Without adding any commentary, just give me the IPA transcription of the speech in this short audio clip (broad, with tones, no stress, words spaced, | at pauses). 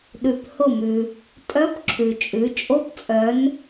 ɗʉ˩phʊ˧˩mʉ˩ | tʼœ˧˥pǁʰʉ˩t͡ʃʼʉ˩˧ t͡ʃʼo˧˥pt͡sʼœ˩˧n